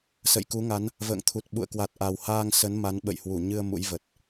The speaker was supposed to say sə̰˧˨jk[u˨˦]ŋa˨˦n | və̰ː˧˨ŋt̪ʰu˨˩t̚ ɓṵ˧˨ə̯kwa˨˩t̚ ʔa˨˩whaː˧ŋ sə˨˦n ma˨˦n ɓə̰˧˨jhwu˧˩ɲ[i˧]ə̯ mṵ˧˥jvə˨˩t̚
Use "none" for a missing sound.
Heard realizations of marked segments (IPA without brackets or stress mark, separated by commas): u˨˦, ɨ˧